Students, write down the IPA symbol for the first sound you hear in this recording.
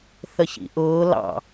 θ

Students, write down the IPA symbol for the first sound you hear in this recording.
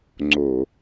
ŋ͡ǀ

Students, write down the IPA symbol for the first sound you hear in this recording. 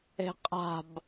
e̤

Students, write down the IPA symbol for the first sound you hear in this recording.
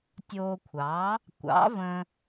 tʲ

